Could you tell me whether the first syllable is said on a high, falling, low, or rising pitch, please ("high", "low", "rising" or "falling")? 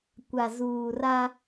low